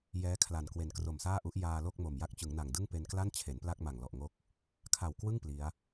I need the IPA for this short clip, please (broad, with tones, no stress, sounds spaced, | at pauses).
j ɛː˦˥ kʰ l a˨˩ n k w e˨˩ n k r o˨˩ m s aː˥˩ ʔ u˦˥ ʔ j aː˧ l o˥˩ k̚ m o˨˩ m j a˦˥ k̚ t͡ɕ ɯ˩˦ ŋ n a˨˩ ŋ d ɯ˥˩ ŋ p e˧ n k l a˥˩ n t͡ɕʰ e˩˦ n p l a˥˩ k̚ m a˨˩ ŋ l ɔ˨˩ ʔ ŋ o˦˥ k̚ | kʰ a˨˩ w k w ɯ˥˩ ŋ p l i˦˥ a̯